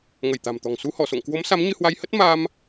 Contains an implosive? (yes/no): no